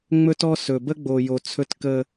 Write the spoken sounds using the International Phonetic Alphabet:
ŋ͡m ɵ˦ t ɔ˦ s ɵ˨ b ə˦ ɡ͡b o˨ j o˨ t͡sʰ ɵ˦ t k ə˦

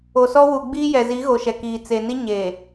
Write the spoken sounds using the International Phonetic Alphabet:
o˨ s ɔ˦ w u˨ ɡ͡b iː˦ j ɛ˨ z i˨˦ ɣ o˨ ʃ ɛ˨ k iː˨ t͡s e˨ n i˦ ɲ e˨

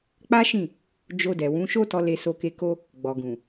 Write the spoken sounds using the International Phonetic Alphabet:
k͡p a˦ ʃ ĩ˦˨ | d͡ʒ o˧ d ɛ˨ w ũ˨˦ ʃ o˦ t ɔ˧ l e˧ s o˧ k e˧ k o˦ | ɡ͡b ɔ˨ ɡ ũ˨

